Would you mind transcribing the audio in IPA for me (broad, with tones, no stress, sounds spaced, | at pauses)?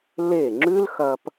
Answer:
l e˦˨ ŋ͡ǁ ʉ˦ l x ɐ˧ p